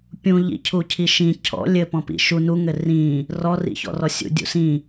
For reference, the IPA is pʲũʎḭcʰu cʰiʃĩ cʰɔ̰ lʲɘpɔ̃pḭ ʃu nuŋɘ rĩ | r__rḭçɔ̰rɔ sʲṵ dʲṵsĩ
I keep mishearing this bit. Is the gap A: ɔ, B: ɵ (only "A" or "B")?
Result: A